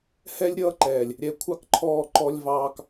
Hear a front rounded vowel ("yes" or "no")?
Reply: no